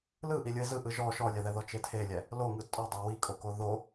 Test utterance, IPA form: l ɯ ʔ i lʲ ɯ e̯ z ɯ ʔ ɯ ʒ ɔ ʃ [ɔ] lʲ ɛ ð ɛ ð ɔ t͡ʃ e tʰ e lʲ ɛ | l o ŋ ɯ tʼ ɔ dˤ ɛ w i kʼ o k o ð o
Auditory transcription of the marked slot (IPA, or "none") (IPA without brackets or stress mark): ɔ